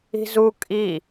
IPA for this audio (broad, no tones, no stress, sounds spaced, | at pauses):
i̤ z u kʼ i